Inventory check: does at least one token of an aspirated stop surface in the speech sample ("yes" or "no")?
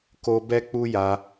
no